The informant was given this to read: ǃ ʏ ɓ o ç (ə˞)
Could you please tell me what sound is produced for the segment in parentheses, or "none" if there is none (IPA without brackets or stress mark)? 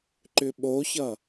ʌ